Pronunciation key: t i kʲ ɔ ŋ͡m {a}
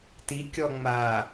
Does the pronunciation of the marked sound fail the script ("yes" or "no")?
no